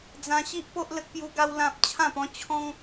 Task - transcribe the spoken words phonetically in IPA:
d͡zã˦ ɕi˦ʔpo˦ʔ lə˦k̚pju˦ɡa˦w lã˦p̚ t͡ɕʰã˥˧pɔ̃˦ t͡ɕʰɔ̃˦ŋ

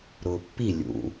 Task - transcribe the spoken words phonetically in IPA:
ɾʊːpːi lʲṵ

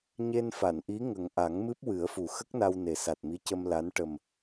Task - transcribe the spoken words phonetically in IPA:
ɲe˧nfa˨˩˨nʔi˧˥ ŋə˨˩ŋ ʔa˨˩˦ŋmɨ˦˥p̚wɨ˨˩˦ə̯fu˨˩ xə˦˥k̚na˧wne˨˩ sa˨˩t̚mi˧˥cə˧m la˧˥n ʈə˨˩m

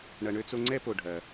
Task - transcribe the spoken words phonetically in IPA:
ɳɐ˨ɳø˦t͡so˦ ŋ͡ǀɛ˥po˨ɖʱɐ˩

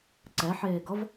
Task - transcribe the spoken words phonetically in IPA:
ǀɛħeːɡʌv

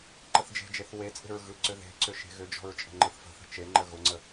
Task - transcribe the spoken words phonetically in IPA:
ǃəθd͡ʒe̤d͡ʒeθ wet͡sʼe̤ɹ ɣɯ ǀʏðe̤ǀʏ ʃe̤ɣʏd͡ʒɔ̤ɹ t͡ʃʼə̤ŋ͡ǃɯθfə̤θə̤ t͡ʃeŋ͡ǃə ɣʊŋ͡ǀə

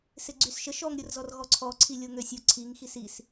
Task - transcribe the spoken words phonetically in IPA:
sɪɡ͡ǀysʃəʃ ɔŋ ɾʲʊrzɔrɣɔǀʰɔ ǀʰilʲoŋøsʲʊ ǀʰiŋ xisis

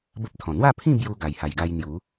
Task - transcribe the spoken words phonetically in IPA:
bə˦p̚t̪ʰɔ̃˨˩ n̪wa˥˧pʰĩ˥˧ bju˧ ɡa˨˩jha˨˩jɡa˧j n̪ju˨˦

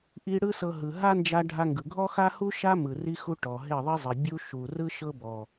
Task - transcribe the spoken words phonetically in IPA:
ʔi˦ ɽɯ˦sɤ˧ ɦɯ˨ɦa˦ nd͡ʒa˧ɖʱa˧ŋɡɯ˨ ɡʱɔ˦xa˦hu˦ ʃa˦mɯ˨ ri˦xu˦ ʈɔ˨ ɦe˦˨ðˤi˦zˤi˨ bʲu˦ ʃu˨rɯ˦ ʃɤ˦bɔ˨

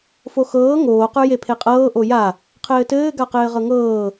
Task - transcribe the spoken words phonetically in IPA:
foxɤː ŋoː qə˞jepʰeqʼɤː ʔoja | qʰɘːtɘː ɡaqɘːʁɤŋɤː

